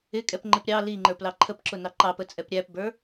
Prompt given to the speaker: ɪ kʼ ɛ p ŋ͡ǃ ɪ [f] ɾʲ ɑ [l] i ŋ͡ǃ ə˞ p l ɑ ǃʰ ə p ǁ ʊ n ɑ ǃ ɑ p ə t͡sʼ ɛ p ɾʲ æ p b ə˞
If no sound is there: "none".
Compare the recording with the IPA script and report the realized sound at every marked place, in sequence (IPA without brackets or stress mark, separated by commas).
p, l